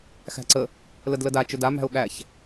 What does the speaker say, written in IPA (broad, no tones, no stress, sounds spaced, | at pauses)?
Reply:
x æ̤ ǀ ə | l ə d l ə d a t͡ʃ ɵ d a m æ̤ ʊ̯ ɠ æ ç